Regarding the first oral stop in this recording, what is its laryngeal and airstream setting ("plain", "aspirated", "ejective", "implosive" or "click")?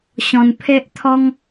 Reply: aspirated